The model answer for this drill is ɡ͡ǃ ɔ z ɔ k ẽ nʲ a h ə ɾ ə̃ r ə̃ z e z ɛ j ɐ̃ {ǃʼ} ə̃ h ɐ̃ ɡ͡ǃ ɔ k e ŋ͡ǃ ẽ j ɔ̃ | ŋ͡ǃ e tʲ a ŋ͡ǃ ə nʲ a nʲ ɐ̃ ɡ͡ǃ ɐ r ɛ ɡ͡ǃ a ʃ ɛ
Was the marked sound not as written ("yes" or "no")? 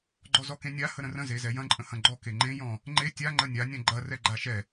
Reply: no